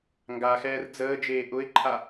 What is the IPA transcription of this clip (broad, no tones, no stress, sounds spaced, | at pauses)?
ŋ ɡ a x ɛː r d͡z əː d͡ʒ eː ʔ ʊ ɪ̯ ǃʰ a